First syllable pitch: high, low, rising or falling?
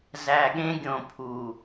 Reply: low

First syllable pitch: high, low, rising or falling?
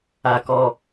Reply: low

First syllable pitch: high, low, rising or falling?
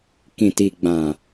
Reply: low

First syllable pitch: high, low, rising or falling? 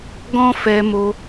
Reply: high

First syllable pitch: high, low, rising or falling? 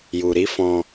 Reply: low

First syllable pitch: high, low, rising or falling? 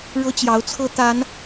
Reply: high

